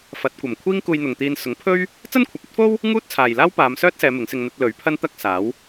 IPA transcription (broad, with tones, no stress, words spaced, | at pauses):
fɐ˨˥t̚kʷɐ˨˩m kʷʰiː˥ŋkuː˧j n̪ʊ˨ŋt̪iː˧n sʊ˨˥ŋpʰɵ˥ɥ | t͡sɐ˥nkʷʰɐ˨p̚ɐ˥t̚fo˥w | ŋuː˥t̚t͡sʰaː˨jlaː˥w paː˨˧msœː˥t̚sɛː˨˧ mɪ˨˥ŋsɪ˧ŋ n̪ɐ˧t̚lɵ˨˥ɥ pʰɐ˥nt̪ɐ˥k̚saː˨˥w